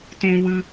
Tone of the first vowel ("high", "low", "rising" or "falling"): high